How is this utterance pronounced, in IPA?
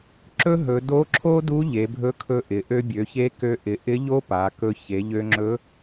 ǁ ɵ˥ ɦ ɵ˩˧ d o˧˥ ǁʰ o˥ d u˧˥ ʎ e˩˧ bʱ ɵ˧˥ kʰ ɵ˧ ʔ ɪ˩˧ ʔ ø˧ bʲ ø˩˧ ç e˧˥ k ø˧ ʔ ɪ˩˧ ʔ ɪ˧˥ ʎ o˥ p a˩˧ k ɵ˧ ç e˩˧ ʎ ø˧ ŋ͡ǁ ɵ˧˥

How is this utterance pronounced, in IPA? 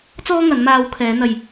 t͡s ɔː˥ ŋ ɐ˨˧ n m aː˧ w kʰ ɛː˨˧ n̪ ɐ˨ j

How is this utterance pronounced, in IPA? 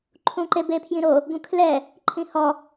ǃʰ ũ ǃ e b e pʰ j ĩ ɾ o | ɡ ũ kʰ l ɛ | ǃʰ ĩ h ɔ

